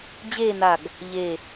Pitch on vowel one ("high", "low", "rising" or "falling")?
falling